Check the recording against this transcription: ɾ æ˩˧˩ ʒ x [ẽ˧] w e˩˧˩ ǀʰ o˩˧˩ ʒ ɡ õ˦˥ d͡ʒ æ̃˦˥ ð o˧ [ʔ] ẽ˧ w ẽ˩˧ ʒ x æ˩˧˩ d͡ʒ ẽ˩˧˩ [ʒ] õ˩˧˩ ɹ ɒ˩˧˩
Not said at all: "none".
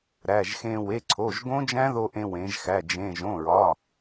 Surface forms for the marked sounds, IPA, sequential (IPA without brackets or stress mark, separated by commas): ẽ˧, ʔ, ʒ